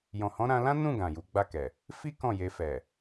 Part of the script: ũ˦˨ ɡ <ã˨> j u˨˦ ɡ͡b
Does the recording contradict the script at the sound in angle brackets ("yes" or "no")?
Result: no